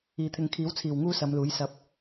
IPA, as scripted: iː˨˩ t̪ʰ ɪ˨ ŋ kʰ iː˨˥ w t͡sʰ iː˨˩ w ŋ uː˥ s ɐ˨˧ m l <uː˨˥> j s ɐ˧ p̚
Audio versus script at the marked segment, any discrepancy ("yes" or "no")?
no